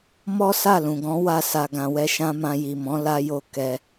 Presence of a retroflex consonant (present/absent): absent